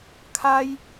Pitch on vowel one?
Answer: high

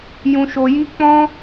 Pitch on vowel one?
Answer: low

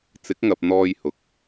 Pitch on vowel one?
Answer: rising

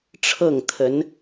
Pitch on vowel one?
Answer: falling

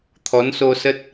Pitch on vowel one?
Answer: rising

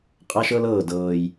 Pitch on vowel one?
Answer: high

